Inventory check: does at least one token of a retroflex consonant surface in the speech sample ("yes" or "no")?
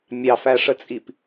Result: yes